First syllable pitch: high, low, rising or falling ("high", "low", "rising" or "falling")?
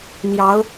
rising